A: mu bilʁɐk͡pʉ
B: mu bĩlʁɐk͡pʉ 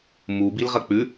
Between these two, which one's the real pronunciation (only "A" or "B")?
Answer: A